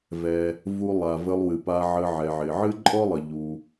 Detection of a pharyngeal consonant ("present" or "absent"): present